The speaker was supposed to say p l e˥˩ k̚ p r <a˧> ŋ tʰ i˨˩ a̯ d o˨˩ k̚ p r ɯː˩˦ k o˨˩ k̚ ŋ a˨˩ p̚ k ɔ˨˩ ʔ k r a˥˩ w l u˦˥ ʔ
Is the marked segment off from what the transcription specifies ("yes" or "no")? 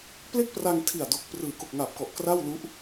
no